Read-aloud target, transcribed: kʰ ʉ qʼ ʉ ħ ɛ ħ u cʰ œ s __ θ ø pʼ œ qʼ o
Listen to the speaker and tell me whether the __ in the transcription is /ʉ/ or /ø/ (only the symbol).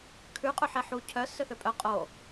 ø